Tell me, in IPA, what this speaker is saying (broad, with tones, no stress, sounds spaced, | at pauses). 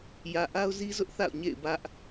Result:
j ä˨ ʔ a˦ ʊ̯ z i˦ z ʊ˦ ʔ θ a̰˦˨ ʊ̯ ɲ ḛ˦˨ ɪ̯ b ä˦ ʔ